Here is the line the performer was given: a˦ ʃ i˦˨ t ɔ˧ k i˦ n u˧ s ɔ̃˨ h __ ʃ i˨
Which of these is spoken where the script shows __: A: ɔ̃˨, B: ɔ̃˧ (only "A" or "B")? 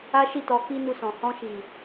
B